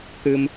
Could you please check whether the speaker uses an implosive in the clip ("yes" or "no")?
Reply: no